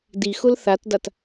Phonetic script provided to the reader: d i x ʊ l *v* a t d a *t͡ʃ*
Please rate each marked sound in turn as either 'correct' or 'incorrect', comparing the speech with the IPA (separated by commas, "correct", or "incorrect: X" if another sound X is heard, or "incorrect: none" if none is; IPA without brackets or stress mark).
incorrect: θ, incorrect: t